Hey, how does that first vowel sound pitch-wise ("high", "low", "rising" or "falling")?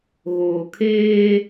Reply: low